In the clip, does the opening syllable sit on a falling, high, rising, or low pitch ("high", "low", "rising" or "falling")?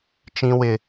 low